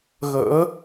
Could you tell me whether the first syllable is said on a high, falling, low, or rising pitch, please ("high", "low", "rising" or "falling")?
rising